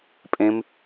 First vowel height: mid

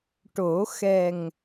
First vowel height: mid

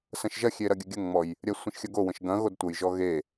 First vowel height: low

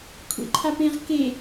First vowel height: mid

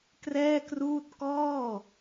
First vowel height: mid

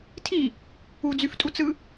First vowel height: high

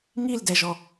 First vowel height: high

